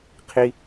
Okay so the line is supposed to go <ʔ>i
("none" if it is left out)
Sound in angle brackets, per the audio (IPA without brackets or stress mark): qʰ